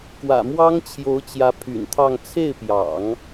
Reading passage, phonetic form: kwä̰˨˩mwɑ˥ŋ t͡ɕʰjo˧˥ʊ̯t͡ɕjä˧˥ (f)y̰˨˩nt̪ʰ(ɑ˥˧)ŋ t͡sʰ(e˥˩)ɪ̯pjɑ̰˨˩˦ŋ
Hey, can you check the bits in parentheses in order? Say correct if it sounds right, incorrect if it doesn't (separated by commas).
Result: incorrect, correct, correct